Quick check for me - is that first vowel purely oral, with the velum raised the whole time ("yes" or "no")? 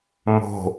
yes